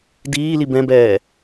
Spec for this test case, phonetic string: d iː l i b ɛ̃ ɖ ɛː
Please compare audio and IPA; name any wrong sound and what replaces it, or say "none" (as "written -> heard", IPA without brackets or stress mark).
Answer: ɖ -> b